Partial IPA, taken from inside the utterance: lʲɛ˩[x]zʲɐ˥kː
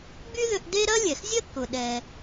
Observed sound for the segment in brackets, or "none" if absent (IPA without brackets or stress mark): x